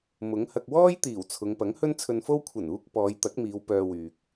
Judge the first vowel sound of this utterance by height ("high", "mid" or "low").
high